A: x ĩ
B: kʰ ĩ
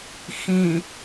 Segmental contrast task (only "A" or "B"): A